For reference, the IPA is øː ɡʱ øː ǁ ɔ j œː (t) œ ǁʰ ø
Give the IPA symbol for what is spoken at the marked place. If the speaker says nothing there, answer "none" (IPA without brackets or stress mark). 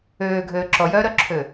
ɾ